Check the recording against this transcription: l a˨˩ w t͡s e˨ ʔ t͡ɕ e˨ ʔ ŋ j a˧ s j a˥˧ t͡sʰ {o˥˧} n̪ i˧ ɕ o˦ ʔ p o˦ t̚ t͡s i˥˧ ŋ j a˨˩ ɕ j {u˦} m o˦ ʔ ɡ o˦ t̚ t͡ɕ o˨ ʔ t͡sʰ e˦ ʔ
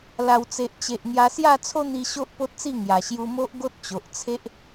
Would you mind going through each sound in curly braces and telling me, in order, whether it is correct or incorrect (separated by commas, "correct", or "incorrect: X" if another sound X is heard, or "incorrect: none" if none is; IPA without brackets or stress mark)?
incorrect: o˦, incorrect: u˧